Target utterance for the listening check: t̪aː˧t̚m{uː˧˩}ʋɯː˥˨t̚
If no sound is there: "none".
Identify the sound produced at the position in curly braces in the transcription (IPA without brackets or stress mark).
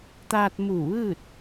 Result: uː˧˩